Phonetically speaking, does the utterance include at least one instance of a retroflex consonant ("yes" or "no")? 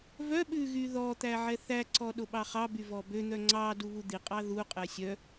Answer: no